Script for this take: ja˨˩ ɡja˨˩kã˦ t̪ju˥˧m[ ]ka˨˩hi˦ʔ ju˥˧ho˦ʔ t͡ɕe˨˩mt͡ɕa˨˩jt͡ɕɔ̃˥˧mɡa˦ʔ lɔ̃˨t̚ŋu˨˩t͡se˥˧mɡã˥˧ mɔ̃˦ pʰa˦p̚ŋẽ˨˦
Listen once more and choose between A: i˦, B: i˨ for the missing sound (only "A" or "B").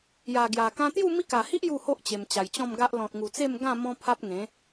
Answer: A